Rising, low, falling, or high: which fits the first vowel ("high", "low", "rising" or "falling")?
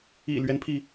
low